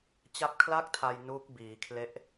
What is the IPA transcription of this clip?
t͡ɕ a˦˥ p̚ kʰ l a˥˩ k̚ tʰ a˧ j n uː˦˥ k̚ b iː˩˦ kʰ l e˦˥ ʔ

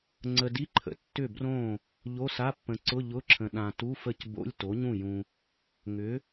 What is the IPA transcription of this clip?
ŋ͡ǀ ə˨ d i˧˥˧ ǃʰ ə̰˩˥ tː ʏ˥˩ b r õ˥˩ | ʎ o˧˥˧ s a˧˥˧ pː ə̃˨ ǀ ʊ˧˥˧ ʎ ʊ˧˥˧ ǁʰ ə̃˨ ɗ ã˨ t u˧˥˧ f ə˥˩ c b o̰˧˥˧ lʲ t o˩˥ ɲ ũ˥˩ j ũ˨ | ŋ ʏ˩˥

